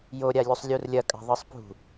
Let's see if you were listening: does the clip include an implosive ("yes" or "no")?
no